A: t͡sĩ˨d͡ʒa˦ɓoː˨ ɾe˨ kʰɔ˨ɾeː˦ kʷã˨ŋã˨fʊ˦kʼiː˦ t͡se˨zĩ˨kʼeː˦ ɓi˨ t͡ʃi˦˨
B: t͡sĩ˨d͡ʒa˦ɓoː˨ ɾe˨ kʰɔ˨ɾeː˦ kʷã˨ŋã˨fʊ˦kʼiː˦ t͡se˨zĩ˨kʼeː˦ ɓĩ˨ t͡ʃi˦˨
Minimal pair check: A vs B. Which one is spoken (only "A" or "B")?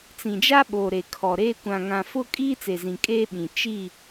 B